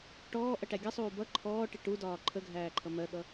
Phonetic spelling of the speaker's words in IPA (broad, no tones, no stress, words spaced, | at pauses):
ʈɔːʔʌʈæ ɡʲʌsˤuː bʌ ǃʰɔːʈɪ ʈudɒː ǃʰəɡʱæːǃʰʌ mɜɠʌ